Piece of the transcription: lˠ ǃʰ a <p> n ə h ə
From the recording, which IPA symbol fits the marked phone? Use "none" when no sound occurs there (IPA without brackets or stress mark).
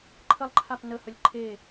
p